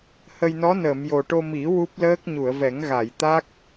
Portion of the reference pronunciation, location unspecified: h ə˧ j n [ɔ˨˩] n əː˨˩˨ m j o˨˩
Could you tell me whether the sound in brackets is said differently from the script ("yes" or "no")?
yes